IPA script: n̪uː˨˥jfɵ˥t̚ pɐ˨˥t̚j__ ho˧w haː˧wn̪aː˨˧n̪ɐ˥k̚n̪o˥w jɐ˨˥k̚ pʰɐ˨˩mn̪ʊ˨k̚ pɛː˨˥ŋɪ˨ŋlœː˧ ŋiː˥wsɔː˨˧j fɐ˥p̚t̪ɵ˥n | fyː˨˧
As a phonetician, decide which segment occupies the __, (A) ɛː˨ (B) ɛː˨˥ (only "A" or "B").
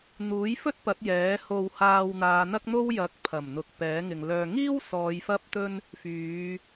B